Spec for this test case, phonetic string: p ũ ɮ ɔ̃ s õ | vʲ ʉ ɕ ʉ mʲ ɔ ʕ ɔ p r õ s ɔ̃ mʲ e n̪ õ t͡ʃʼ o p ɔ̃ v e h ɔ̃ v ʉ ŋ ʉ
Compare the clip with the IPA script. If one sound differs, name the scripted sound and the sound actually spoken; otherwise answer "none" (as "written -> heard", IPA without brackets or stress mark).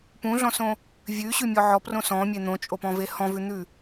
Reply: ŋ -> n̪